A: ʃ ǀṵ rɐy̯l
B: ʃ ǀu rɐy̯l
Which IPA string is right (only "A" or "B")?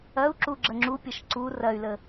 B